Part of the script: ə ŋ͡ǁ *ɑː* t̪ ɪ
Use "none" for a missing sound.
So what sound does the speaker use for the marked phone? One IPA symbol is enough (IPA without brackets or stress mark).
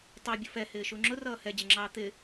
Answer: ɑː